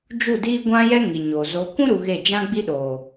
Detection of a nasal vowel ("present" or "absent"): present